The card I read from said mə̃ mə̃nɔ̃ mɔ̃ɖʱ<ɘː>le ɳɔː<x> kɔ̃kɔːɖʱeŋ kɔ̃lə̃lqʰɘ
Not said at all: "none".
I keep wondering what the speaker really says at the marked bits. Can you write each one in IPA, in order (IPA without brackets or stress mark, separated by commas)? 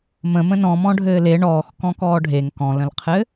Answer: ɘː, x